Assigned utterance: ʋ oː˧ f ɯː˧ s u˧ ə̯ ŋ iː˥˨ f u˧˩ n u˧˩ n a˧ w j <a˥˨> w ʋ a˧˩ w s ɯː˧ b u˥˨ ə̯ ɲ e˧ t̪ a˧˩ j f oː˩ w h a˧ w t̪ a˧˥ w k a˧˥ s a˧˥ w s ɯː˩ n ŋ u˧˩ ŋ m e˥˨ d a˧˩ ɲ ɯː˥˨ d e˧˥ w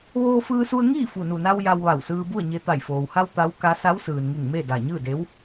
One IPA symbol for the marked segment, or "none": a˧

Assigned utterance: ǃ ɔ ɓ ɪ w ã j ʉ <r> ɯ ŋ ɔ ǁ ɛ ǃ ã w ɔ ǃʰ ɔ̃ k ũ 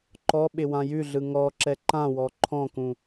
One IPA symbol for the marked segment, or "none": ɮ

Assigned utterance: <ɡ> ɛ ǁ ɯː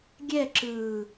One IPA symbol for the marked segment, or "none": ɡʲ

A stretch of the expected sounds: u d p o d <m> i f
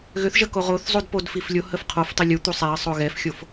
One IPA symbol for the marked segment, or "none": f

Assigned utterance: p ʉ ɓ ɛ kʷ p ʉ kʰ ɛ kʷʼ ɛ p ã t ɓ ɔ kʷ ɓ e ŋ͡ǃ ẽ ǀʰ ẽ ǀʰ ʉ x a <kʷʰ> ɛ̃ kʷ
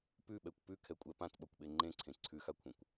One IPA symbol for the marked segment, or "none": kʷʰ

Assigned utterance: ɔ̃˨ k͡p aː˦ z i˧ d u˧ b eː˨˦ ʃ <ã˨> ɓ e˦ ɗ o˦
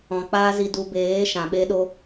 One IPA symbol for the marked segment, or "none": ã˨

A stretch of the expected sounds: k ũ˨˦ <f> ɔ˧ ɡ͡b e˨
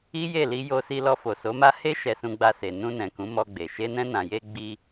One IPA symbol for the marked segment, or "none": m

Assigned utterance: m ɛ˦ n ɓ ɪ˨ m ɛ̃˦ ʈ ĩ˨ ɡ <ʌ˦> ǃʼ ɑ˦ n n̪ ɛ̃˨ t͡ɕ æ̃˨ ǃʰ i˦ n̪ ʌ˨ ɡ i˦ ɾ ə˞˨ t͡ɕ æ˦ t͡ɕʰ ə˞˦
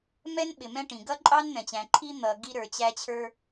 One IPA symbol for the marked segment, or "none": ʌ˦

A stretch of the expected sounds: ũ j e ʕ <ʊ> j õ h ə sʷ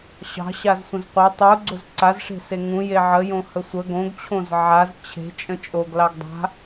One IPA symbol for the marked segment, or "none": ə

